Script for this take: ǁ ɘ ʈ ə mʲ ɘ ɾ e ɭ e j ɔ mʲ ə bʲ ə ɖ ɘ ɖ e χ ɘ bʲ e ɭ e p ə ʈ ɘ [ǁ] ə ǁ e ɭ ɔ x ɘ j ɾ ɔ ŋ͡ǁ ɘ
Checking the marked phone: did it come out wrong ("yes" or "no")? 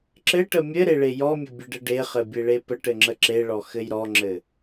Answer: yes